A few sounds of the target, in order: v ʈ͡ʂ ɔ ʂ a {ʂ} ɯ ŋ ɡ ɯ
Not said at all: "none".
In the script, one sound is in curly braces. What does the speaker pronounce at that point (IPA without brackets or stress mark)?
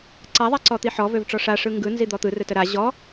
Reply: ʂ